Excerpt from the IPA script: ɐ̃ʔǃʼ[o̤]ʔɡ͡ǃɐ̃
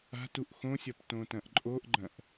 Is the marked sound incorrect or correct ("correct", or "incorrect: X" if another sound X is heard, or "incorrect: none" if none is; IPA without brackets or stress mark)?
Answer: incorrect: o